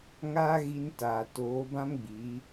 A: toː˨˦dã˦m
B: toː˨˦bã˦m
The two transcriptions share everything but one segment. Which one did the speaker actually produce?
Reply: B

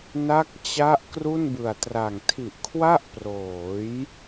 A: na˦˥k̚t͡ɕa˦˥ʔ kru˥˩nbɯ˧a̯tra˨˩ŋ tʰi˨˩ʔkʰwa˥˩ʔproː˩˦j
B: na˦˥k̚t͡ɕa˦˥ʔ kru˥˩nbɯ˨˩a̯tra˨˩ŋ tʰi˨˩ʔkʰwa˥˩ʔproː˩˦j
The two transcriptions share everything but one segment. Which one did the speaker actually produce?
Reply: B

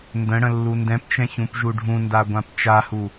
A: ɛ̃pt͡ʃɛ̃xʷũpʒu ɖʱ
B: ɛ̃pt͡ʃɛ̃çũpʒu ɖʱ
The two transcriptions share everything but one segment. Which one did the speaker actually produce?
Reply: B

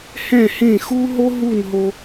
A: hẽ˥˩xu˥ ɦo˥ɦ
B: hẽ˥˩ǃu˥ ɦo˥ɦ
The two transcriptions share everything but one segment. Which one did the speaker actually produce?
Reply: A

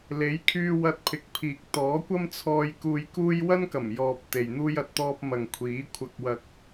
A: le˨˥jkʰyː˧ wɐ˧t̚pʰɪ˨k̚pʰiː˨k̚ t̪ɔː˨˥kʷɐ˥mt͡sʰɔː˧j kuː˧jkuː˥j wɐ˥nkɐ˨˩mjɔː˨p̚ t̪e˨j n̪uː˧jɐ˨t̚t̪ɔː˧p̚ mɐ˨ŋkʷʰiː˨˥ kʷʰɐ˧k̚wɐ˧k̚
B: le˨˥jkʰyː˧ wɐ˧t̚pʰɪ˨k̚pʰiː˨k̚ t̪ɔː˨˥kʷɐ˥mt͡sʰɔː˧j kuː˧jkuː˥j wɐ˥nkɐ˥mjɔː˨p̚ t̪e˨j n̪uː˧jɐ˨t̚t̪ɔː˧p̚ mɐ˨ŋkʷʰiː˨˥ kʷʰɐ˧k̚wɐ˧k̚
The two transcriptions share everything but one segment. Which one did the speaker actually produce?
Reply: A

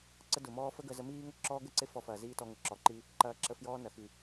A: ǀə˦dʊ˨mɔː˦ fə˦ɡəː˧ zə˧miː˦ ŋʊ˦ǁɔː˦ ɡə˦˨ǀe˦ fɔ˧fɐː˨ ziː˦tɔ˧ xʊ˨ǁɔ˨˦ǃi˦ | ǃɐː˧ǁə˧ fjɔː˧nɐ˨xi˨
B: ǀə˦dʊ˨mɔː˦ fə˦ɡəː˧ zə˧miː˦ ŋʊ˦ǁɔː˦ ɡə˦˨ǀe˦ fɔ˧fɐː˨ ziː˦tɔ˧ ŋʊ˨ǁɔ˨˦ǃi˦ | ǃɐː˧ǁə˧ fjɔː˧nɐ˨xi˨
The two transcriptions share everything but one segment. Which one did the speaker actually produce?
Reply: B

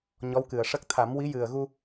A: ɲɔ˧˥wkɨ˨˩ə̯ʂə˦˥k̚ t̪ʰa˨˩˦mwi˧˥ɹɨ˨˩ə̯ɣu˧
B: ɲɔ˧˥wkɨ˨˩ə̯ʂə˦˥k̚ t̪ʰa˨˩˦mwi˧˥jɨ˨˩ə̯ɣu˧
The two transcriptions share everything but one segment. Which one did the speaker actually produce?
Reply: B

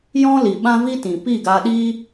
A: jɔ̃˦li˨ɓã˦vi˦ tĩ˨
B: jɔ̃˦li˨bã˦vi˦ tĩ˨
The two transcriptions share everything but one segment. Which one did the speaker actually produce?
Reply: A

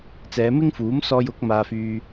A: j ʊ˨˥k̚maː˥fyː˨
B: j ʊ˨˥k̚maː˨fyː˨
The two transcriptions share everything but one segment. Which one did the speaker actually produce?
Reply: B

